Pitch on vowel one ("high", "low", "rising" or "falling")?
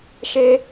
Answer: high